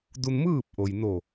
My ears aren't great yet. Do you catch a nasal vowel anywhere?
no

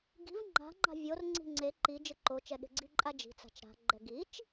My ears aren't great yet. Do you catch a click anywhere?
yes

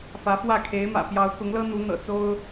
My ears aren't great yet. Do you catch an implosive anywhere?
no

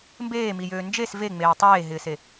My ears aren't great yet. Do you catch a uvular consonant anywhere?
no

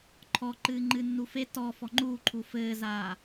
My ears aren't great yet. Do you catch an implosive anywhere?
no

